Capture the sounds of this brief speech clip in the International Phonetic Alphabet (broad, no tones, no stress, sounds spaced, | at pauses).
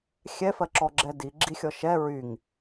xʲ ɛ f ɜ ǁ ɔ ɡ͡ǁ ɛ d i ɡ͡ǁ i xʲ ɔ ʃ ɛ ɹ y ŋ